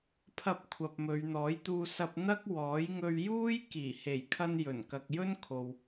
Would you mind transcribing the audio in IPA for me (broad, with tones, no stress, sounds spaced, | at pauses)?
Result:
pʰ ɐ˧ p̚ kʷʰ ɐ˨ p̚ m ɵ˨˧ ɥ n̪ ɔː˨˥ j t̪ uː˧ s ɐ˧ p̚ n̪ ɐ˥ k̚ w ɔː˨˥ j ŋ ɵ˧ ɥ j uː˥ j k iː˨˩ h e˨˩ j kʰ ɐ˧ n j ɵ˨˩ n k ɐ˨ k̚ j ɵ˥ n kʰ o˨ w